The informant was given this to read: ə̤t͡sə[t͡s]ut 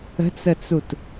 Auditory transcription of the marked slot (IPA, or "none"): t͡s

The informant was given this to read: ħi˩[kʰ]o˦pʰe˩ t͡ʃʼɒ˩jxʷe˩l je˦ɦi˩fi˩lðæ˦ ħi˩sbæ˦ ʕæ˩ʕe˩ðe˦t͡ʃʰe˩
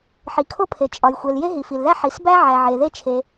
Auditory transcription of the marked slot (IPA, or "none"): kʰ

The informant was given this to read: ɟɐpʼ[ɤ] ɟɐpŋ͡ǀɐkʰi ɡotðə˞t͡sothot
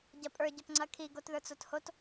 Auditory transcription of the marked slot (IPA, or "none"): ə˞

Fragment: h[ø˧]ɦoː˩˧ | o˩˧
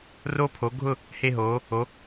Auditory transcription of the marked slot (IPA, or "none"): e˧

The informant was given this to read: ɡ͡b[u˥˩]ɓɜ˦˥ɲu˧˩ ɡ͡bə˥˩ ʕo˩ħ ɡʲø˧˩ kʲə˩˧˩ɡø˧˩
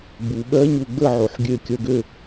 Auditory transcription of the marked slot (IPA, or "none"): u˩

